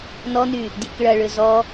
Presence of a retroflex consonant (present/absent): present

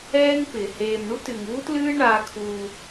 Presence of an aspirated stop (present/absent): present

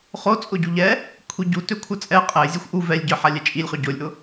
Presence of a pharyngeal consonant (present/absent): present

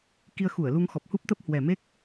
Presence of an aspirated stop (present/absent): absent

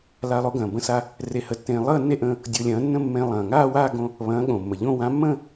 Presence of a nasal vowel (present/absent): present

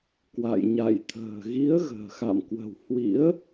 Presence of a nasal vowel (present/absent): absent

